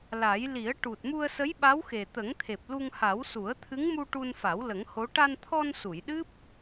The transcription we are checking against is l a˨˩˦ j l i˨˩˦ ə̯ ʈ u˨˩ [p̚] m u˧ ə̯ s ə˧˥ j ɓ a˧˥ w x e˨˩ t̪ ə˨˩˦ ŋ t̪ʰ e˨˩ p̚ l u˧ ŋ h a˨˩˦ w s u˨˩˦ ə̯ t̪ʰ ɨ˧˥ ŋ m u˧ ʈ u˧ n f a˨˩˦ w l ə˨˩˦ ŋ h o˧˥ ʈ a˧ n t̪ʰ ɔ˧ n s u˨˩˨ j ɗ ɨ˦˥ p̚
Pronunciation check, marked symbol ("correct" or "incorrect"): incorrect